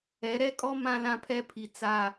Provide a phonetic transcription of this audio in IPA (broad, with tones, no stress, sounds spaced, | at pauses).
ɛ˨˦ ɾ ɛ˦ kʼ ɔ˦ m ã˦ l ã˦ pʰ ɛ˦ pʰ i˨ t͡s a˦˨